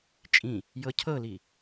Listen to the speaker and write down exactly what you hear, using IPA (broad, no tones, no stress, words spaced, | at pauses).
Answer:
t͡ʃʼĩ | jɤcʰɤli